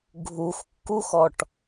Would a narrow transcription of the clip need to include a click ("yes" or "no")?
no